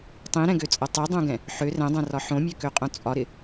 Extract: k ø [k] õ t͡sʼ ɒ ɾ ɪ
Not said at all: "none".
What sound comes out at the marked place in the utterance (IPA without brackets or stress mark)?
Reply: qʼ